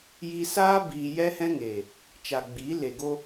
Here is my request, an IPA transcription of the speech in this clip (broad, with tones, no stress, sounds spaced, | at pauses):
j i˧ s aː˦ b iː˧ j ɛ˦ h ɛ̃˦ ŋ eː˨ | t͡ʃ a˨ ɡ͡b iː˨˦ l e˨ ɡ o˧